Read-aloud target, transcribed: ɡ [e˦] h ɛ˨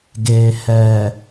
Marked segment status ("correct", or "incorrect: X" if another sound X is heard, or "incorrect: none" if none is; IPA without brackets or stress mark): incorrect: e˨